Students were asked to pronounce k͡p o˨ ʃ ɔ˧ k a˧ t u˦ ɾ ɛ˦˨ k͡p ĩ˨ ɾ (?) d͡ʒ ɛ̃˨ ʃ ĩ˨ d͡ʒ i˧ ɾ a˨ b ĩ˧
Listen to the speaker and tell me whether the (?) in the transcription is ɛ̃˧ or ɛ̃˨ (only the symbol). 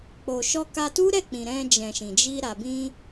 ɛ̃˧